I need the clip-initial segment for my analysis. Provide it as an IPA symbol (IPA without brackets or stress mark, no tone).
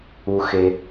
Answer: u